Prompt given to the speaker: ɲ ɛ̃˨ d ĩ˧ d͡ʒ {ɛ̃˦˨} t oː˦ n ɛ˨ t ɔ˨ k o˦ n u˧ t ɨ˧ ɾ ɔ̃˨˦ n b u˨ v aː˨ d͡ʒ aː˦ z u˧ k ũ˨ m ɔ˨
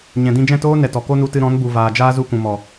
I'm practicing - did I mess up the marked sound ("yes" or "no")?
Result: no